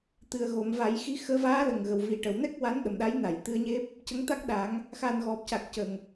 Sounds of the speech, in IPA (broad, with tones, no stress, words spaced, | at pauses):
t̪ɨ˨˩ə̯ɣo˨˩˨m va˨˩˦jxi˧˥xəː˧˥ vaː˧˥lə˨˩ŋɣə˨˩w vi˨˩ʈə˨˩˨wnɛ˦˥k̚ wa˧˥nɗə˨˩mɗa˧˥j na˨˩˨j t̪ɨ˧ə̯ɲe˦˥p̚ | cə˧˥ŋt̪a˦˥k̚ɗa˨˩˦ŋ | xa˨˩n ɣɔ˨˩p̚ca˨˩k̚ cə˨˩ŋ